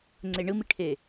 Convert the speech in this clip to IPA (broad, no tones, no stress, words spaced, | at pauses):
ŋ͡ǀeɳɯmiʈʰe